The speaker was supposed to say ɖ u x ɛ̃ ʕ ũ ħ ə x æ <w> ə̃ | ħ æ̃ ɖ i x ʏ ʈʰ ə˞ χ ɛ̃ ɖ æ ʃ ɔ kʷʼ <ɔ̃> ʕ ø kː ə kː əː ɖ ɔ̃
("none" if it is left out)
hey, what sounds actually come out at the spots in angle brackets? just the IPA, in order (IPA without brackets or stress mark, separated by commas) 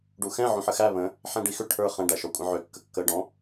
β, ə̃